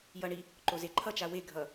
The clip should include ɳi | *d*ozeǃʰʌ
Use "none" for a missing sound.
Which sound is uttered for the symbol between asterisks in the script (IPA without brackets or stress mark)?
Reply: ǃ